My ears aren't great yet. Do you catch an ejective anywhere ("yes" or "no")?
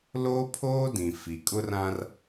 yes